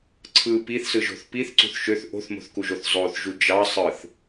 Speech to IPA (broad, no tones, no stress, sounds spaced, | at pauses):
ǀʰ ɯ p i θ s ɯ ʒ o̤ θ p i θ ǀ ṳ θ ʃ ø θ ʔ o̤ θ m o̤ θ k u ʒ o θ zˤ o θ ʒ u d͡ʒ ɑ sˤ ɯ θ